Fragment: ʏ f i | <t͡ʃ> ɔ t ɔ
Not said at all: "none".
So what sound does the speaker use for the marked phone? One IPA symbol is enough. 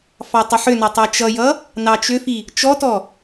t͡ʃ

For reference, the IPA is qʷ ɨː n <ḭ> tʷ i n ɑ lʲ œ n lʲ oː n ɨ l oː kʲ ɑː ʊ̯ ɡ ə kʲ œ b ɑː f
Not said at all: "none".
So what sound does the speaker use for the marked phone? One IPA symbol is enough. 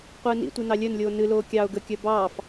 ḭ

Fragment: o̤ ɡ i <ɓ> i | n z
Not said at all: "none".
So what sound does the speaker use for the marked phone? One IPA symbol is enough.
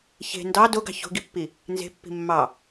pː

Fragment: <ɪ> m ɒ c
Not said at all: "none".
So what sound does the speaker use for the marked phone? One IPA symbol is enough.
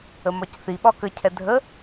ə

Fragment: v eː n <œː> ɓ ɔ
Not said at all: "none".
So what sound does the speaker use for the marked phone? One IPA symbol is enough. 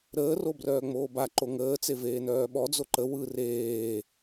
œː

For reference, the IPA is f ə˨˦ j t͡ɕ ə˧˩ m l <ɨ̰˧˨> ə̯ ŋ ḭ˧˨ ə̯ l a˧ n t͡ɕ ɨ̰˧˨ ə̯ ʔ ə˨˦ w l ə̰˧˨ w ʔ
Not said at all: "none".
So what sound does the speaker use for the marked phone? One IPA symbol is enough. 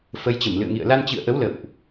ɨ̰˧˨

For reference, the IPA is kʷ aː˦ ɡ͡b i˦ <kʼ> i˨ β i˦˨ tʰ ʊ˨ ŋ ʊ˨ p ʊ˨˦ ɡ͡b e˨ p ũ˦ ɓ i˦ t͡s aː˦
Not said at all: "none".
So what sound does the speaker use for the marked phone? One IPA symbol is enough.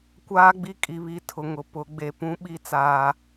kʼ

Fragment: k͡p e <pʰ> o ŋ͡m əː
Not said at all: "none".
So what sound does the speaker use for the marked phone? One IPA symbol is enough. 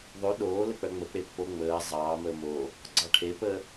pː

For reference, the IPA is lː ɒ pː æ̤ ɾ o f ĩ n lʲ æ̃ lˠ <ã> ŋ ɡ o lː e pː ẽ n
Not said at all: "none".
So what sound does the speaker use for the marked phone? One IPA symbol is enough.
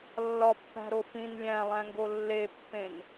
æ̃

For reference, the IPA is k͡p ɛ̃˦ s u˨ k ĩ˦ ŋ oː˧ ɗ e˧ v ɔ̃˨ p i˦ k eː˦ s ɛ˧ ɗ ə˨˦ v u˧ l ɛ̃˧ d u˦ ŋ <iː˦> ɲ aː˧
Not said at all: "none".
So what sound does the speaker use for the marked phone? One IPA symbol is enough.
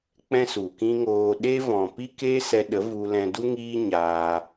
iː˦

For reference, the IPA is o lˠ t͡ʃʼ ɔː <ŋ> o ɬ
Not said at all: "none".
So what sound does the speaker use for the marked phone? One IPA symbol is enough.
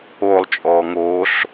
ŋ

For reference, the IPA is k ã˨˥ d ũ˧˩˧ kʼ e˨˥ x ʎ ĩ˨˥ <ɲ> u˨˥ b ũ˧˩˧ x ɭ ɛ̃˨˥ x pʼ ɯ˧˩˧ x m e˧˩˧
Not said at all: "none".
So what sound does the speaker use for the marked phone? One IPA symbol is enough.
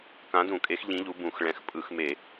ʎ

